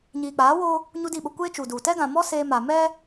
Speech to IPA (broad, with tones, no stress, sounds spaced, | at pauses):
ɲ iː˨ k͡p aː˨˦ w oː˦ | ɲ u˦ d i˦˨ ɓ ʊ˦ kʷ eː˦ t͡ʃ u˨ d u˨ t ɛ˦ ɡ ã˨ m ɔ˦ s eː˦ m a˨ m ɛ˦